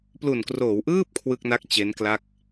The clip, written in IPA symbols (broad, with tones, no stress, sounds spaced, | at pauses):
p l u˨˩ n k r oː˩˦ w ʔ ɯː˥˩ p̚ kʰ w ɯ˥˩ k̚ n a˥˩ k̚ t͡ɕ e˦˥ n k l a˥˩ k̚